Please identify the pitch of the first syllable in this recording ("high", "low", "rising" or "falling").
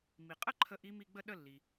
low